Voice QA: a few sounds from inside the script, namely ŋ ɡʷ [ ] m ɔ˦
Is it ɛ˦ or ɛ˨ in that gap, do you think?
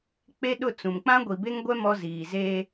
ɛ˦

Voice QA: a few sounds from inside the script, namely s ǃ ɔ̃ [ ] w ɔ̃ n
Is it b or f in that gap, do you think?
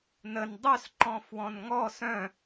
f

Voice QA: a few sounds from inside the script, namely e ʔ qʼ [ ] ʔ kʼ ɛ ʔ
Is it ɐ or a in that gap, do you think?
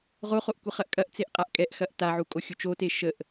a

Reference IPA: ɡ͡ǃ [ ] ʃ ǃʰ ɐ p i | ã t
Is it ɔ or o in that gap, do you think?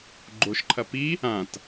o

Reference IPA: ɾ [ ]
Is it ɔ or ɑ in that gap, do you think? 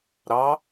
ɑ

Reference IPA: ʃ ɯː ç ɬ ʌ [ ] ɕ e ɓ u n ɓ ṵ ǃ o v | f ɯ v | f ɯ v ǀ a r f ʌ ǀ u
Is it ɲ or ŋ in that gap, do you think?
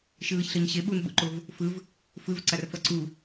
ɲ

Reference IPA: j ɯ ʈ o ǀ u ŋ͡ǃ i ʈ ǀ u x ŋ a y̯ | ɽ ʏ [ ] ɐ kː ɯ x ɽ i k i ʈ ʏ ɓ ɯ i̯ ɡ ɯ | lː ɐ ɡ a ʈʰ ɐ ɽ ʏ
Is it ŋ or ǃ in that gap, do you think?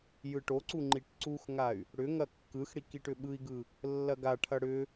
ŋ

